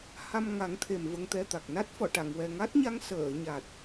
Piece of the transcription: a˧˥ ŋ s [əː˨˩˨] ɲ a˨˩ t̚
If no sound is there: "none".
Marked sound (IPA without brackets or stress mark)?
əː˨˩˨